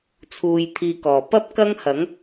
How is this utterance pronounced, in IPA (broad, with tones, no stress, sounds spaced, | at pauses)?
t͡sʰ uː˧ j t̪ʰ iː˧ k ɔː˨ p ɐ˥ p̚ k ɐ˥ ŋ h ɐ˨˥ ŋ